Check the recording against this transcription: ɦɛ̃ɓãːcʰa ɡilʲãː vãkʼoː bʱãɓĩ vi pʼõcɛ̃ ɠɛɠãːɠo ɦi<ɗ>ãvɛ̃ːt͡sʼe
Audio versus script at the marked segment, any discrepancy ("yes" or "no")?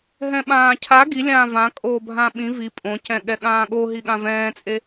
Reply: yes